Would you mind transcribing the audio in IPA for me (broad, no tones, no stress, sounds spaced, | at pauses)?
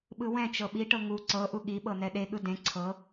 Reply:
ɓ ɯ w ɛ̃ t͡ʃ ɤ ɓ i ʈ ɤ ŋ u ǀ ɤ ʔ u ɠ i ɓ ɤ n ɛ ɗ e ɠ ɯ d ẽ ǀʰ ɤ